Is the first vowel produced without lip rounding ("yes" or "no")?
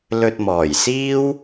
no